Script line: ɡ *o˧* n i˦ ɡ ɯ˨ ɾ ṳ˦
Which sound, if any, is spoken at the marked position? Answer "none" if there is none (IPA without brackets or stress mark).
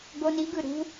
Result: o˧